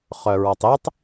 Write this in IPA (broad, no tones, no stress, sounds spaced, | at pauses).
χ œ ɹ ɔ tˤ i tˤ